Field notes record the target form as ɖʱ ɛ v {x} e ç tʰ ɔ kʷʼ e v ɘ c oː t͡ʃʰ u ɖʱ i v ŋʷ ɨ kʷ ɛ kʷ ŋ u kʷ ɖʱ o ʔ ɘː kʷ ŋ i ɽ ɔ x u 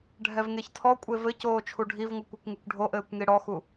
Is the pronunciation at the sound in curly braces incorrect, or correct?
incorrect